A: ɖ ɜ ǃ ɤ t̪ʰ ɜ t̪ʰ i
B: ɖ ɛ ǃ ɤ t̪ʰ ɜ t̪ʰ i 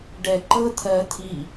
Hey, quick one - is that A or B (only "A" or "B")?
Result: B